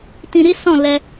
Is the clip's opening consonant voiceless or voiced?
voiceless